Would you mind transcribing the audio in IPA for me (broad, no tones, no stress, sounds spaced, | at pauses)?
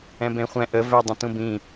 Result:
ɛ̃ b ẽ χʷ ɛ̃ ʔ ə v ɛ dˤ ə̃ t ũ b ĩ